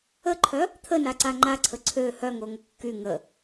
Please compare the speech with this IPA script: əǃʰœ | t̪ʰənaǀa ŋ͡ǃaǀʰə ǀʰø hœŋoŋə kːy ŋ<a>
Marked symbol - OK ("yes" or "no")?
no